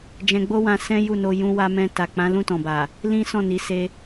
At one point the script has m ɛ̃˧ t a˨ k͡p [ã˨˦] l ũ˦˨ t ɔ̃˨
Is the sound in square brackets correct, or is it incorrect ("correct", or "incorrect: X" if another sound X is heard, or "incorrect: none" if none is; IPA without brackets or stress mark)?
correct